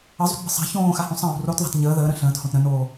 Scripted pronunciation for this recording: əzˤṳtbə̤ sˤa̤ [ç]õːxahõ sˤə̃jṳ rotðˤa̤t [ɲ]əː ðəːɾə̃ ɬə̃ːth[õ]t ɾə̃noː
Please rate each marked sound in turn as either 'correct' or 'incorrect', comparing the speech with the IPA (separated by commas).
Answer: correct, correct, correct